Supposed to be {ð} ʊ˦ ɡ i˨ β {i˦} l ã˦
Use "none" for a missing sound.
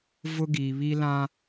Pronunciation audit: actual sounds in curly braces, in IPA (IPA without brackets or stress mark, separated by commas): v, i˦